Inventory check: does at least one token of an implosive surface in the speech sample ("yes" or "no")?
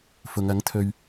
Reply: no